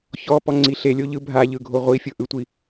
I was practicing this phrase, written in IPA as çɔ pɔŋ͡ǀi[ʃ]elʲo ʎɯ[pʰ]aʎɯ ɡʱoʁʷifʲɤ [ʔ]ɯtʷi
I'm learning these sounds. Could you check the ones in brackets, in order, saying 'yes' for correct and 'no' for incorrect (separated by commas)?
no, no, yes